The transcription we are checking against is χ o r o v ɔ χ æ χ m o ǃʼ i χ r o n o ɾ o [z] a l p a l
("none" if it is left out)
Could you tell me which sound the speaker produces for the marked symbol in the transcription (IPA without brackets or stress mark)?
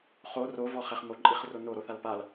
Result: θ